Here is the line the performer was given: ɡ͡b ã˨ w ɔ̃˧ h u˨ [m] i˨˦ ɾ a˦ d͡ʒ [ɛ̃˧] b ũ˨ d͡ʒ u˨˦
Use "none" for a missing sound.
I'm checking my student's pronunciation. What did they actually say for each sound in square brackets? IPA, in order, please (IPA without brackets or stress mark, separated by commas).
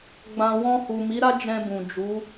m, ɛ̃˧